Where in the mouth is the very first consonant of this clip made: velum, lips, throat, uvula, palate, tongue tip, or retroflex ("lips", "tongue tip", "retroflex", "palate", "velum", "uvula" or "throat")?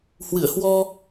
throat